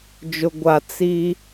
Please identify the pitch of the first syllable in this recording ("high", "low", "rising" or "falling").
low